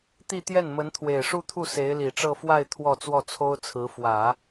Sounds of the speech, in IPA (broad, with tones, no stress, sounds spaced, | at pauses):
t̪ i˥˧ t̪ j ɛ˥˩ n m ə˧˥ n t̪ʰ w e˨˩ ɪ̯ ʂ u˥˧ t̪ʰ u˥˩ s e˧˥ ɪ̯ l i˨˩ ʈ͡ʂ ɤ˥˧ f w a˥˧ ɪ̯ t̪ʰ w ɔ˥˧ t͡s w ɔ˥˩ t͡sʰ o˥ ʊ̯ t͡sʰ ɹ̩˧˥ f w ä˨˩˦